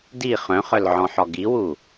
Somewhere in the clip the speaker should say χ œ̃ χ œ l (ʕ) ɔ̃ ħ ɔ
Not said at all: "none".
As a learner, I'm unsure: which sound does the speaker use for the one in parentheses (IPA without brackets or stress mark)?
ʕ